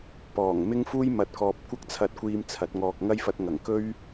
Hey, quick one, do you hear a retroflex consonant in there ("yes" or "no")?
no